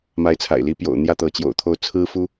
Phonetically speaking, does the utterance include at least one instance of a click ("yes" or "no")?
no